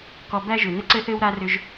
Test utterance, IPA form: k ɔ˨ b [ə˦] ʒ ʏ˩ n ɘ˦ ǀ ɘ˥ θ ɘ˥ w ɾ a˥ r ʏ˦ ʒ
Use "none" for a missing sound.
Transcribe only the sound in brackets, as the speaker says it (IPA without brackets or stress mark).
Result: æ˦